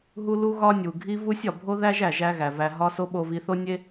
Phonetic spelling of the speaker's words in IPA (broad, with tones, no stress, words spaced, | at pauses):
ɦu˥ lu˥ɣɒ˥nʲu˩ ɡʱi˥vu˥sʲ ɒ˩bʱo˥ðæ˥ʒ æ˩ʒæ˥ɣæ˩væ˧ ɦɒ˥so˥ ɓo˧vi˧θo˥nʲe˥